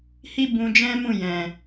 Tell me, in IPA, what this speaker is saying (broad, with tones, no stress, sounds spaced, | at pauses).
h i˦ b ũ˧ d͡ʒ ɛ̃˦ m ũ˦˨ j ɛ̃˨